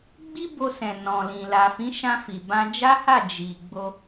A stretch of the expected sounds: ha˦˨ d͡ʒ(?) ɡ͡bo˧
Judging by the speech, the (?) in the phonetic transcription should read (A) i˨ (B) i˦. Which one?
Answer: A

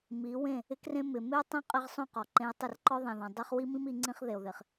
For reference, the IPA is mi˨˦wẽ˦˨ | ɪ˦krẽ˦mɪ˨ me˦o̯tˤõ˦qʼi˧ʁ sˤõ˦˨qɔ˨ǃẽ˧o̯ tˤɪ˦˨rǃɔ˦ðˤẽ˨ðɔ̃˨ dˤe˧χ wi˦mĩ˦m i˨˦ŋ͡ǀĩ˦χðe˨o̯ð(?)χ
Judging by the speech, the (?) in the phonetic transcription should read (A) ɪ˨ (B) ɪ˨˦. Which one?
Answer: A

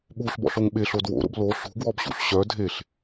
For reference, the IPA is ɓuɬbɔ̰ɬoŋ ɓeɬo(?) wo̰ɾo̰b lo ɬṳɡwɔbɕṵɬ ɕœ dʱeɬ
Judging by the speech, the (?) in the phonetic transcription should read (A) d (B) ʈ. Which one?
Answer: A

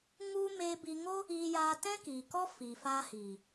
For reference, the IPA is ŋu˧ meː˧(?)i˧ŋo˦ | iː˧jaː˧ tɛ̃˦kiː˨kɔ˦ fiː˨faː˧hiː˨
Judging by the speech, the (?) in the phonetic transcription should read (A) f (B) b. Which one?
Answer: B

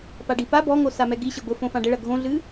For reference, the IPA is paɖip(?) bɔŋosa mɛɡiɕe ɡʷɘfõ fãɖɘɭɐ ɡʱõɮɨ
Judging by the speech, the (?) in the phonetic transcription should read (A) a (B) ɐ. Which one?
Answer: A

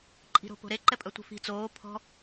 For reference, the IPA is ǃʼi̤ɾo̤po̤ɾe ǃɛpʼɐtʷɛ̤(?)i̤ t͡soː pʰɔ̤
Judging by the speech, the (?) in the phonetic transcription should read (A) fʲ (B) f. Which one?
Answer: B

